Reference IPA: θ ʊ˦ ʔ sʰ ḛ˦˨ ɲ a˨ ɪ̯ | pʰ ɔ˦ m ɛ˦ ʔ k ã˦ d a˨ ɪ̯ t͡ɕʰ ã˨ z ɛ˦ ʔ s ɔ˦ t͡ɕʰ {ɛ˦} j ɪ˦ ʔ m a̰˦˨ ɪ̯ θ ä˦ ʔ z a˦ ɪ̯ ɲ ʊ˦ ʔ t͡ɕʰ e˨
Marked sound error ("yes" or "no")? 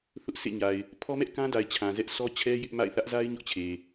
no